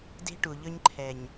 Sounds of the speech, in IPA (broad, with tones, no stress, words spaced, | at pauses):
de̤˦ʈu˨ʎɵ˦ɲ ǃʰɛ˨ɲ